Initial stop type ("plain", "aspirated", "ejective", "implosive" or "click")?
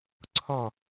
click